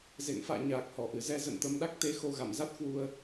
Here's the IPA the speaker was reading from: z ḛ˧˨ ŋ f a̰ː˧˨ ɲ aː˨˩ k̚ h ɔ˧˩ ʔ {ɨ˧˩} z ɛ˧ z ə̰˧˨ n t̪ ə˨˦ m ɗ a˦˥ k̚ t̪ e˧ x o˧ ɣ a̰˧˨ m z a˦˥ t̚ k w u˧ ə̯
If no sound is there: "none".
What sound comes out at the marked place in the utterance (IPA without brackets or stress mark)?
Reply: ɨ˧˩